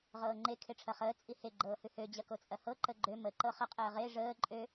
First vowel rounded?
no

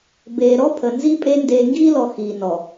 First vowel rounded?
no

